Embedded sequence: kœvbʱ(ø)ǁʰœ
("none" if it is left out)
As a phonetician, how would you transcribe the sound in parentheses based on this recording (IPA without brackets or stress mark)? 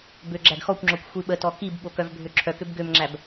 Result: ø